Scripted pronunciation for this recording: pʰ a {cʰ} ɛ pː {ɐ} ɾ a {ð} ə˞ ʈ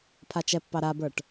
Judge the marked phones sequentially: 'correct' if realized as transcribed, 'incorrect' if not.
incorrect: t͡ʃ, incorrect: ɑ, incorrect: b

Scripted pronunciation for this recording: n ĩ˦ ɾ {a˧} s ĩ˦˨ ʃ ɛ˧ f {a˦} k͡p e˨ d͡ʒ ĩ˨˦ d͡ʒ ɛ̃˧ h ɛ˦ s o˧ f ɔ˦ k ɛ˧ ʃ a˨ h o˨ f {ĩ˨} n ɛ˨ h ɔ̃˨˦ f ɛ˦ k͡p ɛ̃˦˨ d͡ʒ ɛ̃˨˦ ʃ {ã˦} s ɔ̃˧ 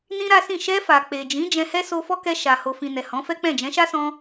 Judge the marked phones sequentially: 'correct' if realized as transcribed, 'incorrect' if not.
incorrect: a˦, incorrect: a˨, correct, incorrect: a˦

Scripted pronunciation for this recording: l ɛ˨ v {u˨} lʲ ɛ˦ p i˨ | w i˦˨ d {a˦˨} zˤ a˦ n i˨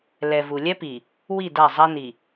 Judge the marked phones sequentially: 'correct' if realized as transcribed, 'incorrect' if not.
correct, correct

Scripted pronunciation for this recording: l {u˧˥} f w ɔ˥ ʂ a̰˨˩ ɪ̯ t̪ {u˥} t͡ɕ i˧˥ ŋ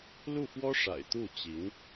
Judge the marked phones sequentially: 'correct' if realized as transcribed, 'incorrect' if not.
incorrect: u˥˩, incorrect: u˥˩

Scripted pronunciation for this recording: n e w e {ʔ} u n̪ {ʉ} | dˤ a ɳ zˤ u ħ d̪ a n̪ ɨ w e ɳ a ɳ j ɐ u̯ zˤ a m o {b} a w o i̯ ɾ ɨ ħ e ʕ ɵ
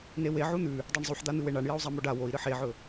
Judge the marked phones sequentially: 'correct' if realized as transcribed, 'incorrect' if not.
incorrect: ʕ, correct, incorrect: ɖ

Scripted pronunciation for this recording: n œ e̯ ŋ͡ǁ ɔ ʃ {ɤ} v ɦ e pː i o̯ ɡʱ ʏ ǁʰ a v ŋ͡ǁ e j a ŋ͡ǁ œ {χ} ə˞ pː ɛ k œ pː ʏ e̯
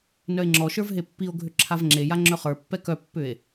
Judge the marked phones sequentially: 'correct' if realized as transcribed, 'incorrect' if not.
incorrect: ə˞, correct

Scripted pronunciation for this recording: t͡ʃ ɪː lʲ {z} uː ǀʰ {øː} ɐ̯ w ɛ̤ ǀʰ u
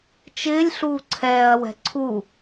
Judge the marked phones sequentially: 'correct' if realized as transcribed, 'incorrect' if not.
incorrect: ɬ, incorrect: ɛː

